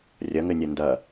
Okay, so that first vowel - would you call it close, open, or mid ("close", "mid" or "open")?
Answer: open